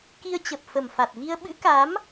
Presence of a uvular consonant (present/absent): absent